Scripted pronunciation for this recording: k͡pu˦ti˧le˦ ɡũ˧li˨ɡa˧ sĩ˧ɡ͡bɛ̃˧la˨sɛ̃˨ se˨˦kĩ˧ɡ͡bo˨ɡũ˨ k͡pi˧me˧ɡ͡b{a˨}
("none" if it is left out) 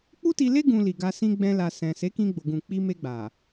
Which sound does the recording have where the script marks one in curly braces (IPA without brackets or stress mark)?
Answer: a˨